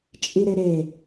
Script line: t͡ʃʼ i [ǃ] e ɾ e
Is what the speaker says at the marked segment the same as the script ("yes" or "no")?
no